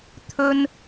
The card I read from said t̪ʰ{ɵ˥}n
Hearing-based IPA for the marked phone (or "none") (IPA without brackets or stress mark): ɵ˥